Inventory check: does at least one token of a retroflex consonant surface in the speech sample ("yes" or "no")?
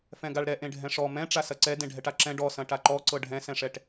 yes